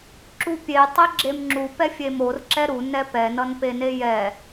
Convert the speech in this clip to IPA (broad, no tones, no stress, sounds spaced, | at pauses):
ǁ u pʲ e tˤ e ɡ͡ǁ e m ŋ͡ǁ u p ɛ fʲ e m o r ǁ ɛ ɾ u n ɛ p ɛ n ʌ n p e n e j ɛ